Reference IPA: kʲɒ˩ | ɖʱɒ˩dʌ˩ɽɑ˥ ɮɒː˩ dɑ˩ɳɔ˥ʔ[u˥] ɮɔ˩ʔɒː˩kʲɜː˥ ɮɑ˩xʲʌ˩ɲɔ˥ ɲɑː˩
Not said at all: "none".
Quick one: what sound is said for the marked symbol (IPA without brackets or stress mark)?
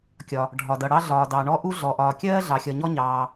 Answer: u˥